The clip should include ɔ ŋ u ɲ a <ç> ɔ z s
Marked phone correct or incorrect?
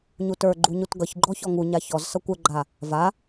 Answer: correct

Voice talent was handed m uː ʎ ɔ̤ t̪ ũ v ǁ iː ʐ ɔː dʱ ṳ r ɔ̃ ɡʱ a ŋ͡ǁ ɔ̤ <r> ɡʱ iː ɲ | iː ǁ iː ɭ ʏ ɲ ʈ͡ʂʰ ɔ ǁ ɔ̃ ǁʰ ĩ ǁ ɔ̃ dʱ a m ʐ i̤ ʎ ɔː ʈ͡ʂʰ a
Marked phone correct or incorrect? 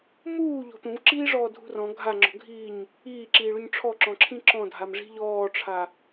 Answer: incorrect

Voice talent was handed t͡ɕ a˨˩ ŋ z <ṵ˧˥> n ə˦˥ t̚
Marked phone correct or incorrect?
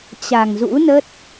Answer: correct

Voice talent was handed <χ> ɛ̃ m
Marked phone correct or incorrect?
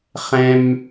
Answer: correct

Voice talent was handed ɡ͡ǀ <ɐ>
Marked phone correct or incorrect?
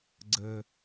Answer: incorrect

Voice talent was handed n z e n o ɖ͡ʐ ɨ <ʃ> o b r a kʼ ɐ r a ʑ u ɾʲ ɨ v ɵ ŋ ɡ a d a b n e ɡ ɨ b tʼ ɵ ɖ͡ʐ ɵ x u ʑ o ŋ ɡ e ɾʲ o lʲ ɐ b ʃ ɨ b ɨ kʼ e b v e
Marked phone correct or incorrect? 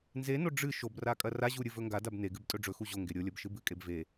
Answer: correct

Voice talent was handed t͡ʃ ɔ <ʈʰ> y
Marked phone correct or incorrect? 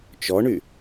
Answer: incorrect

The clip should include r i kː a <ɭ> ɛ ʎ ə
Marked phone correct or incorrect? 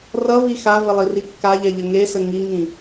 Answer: incorrect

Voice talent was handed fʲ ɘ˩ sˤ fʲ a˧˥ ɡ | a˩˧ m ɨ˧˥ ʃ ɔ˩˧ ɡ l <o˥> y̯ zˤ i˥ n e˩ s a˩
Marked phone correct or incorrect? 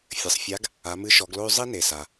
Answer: correct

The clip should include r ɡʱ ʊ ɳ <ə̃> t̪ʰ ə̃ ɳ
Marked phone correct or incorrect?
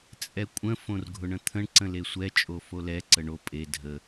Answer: correct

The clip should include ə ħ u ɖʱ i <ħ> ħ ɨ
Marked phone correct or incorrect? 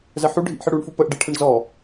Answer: incorrect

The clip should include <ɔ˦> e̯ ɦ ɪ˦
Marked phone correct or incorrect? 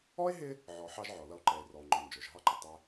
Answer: incorrect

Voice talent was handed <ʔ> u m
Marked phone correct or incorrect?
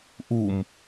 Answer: correct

